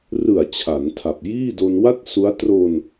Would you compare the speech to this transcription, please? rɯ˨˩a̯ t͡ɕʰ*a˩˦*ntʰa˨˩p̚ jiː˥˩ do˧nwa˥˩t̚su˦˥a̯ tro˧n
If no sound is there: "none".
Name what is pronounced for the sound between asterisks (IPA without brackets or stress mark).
a˩˦